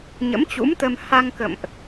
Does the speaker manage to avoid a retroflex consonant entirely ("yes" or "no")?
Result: yes